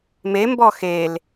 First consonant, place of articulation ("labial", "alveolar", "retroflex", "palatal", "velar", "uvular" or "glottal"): labial